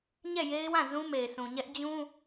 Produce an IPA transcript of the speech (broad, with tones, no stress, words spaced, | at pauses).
ɲɛ˦˨je˦ɪ̯wã˦˨ zũ˦me˨ɪ̯sũ˨ɲɛ˦ʔ d͡ʑũ˦